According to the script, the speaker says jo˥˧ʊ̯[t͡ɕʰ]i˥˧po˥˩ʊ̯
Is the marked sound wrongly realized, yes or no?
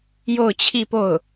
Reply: no